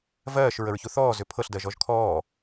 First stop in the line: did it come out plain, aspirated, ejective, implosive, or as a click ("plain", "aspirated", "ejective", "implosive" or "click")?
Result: aspirated